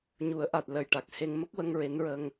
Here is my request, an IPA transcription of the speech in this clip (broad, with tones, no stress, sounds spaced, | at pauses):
ɲ u˨˩˦ ə̯ ʔ a˨˩ t̚ l ə˨˩ j ʈ a˨˩ k̚ h e˧ ŋ m ə˦˥ k̚ w ə˧ ŋ ɹ e˧˥ n ɹ ə˧ ŋ